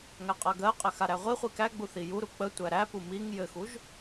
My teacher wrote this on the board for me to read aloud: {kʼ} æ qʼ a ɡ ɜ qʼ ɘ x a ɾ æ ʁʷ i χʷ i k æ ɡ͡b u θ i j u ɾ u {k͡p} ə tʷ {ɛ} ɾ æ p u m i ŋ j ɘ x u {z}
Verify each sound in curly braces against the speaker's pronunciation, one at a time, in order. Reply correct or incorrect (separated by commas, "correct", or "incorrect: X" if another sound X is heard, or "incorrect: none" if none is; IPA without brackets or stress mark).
incorrect: ŋ, correct, incorrect: æ, incorrect: ʒ